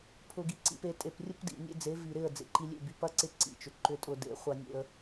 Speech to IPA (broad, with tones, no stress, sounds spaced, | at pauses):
pʰ ʊ˨ ɡ i˨ ǀ ḭ˨ p e˨ tʼ e˨ p rʲ ʊ˦ p d ḭ˨ nʲ ḛ˦ d͡z e˨˦ v i˨ ɾ ɪ˦˨ ə̯ d͡z ḛ˨ ǃ i˨ lʲ ḛ˦˨ b y˨ p ɐ˦ ǀ ɪ˦ ǀ ḭ˨ t͡ʃ ʏ˨ ǃ ʏ˨ tʼ ʊ˨ d ḛ˨˦ χʷ ɐ˦ nʲ ḛ˦ ə̯